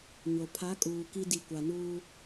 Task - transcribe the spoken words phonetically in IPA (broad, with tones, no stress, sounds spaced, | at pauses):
ɲ o˨ pʰ a˨˦ kʼ uː˨ k i˦ d i˨ kʷ a˨ n uː˦